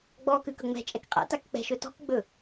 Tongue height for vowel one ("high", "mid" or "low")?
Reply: mid